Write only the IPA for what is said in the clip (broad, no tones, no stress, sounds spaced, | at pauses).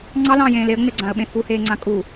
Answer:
ŋ͡ǀ ɑ l ɑ̃ː j ẽː l e ə̯ ŋ͡m e ɡ͡ǀ ã ə̯ ɓ ẽ f u h eː ŋ͡ǀ ã kʼ u